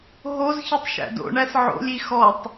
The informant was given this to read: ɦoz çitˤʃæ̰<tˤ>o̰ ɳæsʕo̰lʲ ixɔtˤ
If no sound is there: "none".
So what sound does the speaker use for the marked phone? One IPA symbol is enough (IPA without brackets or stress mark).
d